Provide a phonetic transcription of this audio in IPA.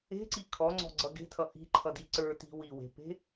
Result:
e̤ǀi kʰɔŋ͡ǀɔ̤ɡ͡ǀʌ ɡe̤tʰʌ ʔi̤ǃʰʌdi ǀə˞ti̤ wiwe̤pe̤

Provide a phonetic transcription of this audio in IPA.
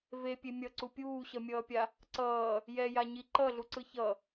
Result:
vepʲe mʲʌǀu pʲuːɕʌmʲʌːpʲa | ǀʌː | jɛjaɲi ǃʌɮuǀɯ çʌ

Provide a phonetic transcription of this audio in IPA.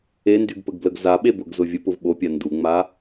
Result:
endyɡpəɡbləɡ zaɓebʊɡzʊ vʲəpʊv ɓopʲa nduŋ͡ma

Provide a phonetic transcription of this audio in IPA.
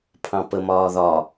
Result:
pʰɑ̃pə mɒːðɒ

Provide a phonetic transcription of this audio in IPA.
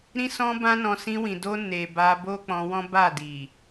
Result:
ɾĩ˦sɔ̃˦bã˦nɔ̃˧ sĩ˧wĩ˨do˧ ne˨ ba˧bo˦ k͡pɔ̃˧wɔ̃˦ ba˦˨di˨

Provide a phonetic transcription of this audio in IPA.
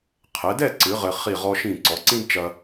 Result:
qʰɛ˩˧dɛ˥˧ǀɨ˩˧ ʁɘ˧ χi˧˩ʁɔ˧ʃĩ˧˩ ǀɔ˩˧ǀĩ˥dt͡ʃɐ˧

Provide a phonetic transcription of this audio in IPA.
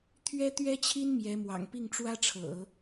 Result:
t̪ʰɥɛ˥t̪ɥɛ˥t͡ɕʰi˥n mjɛ˧˥mwɑ̰˨˩ŋ pi˥˩ŋʈ͡ʂwä˥ʈ͡ʂʰɤ̰˨˩˦

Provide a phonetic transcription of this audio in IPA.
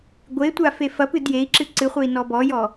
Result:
ɡʷetʷafe fɐpɨd jei̯ǁɨ ǀɨχʷei̯nɔ bɔjɔ

